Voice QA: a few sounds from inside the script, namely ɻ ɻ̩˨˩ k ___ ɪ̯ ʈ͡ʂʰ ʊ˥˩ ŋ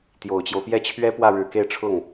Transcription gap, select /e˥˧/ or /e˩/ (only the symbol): e˥˧